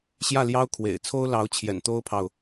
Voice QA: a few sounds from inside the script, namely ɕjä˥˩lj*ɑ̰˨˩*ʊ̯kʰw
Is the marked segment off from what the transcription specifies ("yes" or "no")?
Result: yes